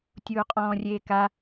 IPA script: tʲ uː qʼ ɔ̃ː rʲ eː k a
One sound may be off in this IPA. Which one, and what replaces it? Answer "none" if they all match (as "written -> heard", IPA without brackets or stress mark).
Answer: none